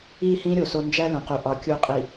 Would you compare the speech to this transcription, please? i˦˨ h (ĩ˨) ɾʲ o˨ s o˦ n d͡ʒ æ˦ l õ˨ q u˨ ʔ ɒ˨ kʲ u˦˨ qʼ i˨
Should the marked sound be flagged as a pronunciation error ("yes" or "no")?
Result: yes